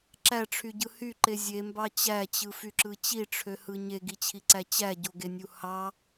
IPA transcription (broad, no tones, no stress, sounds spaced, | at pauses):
ǁ æ ʈ͡ʂʰ y ɟ ɯ h y ǃ e zʲ e m b ɑ t͡ɕ æ t͡ɕ ɯ f y ǁ ɯ t͡ɕ i ʈ͡ʂʰ ø h ɯ ɲ e ɡ i t͡ɕʰ i ǀ æ t͡ɕ æ ɟ o ɡ e nʲ u h ɑ